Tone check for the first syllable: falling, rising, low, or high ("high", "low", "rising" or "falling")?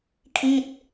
falling